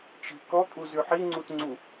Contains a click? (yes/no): yes